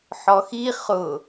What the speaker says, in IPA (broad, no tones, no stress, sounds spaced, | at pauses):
ħ ɔ x i χ ʊ